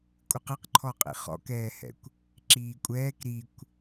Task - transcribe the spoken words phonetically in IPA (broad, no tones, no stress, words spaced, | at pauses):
kʷʼɨqɨqǃʰɔqʼḭ χɔ̰kɛːhɛ̰kʷ | ǁiːkʷʼɛːk ɾikʷ